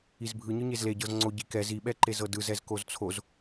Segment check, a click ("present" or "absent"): present